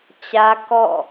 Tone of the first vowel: high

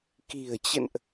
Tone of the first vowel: low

